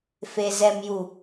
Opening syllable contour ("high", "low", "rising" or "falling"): low